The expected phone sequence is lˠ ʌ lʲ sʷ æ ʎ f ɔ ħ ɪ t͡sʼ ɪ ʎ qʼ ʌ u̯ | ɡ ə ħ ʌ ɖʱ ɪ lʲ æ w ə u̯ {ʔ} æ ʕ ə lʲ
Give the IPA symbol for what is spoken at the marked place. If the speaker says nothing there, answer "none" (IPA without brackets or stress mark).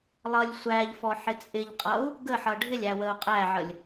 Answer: qʼ